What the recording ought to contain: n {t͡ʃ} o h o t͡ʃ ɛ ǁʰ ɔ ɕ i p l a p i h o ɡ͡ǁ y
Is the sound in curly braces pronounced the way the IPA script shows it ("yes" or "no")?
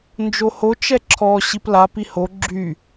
no